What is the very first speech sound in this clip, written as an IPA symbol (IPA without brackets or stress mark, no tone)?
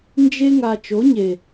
n